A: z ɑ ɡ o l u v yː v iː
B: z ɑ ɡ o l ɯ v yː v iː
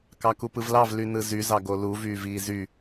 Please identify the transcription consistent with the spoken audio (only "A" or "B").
A